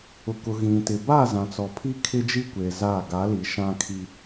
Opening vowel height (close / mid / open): close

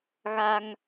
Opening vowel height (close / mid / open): open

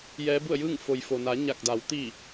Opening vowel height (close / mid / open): mid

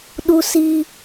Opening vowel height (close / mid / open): close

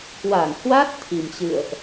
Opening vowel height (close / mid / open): open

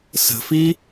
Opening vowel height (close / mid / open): mid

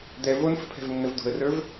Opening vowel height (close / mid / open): mid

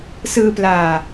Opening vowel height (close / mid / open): close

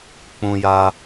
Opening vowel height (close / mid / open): close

